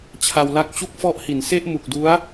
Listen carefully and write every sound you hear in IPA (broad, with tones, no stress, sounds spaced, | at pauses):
t͡ɕʰ a˧ w l a˥˩ k̚ t͡ɕ u˥˩ k̚ f ɔ˦˥ ʔ h i˩˦ n s e˥˩ ʔ m u˨˩ k̚ d u˦˥ a̯